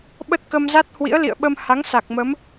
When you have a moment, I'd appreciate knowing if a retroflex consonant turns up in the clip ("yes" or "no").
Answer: no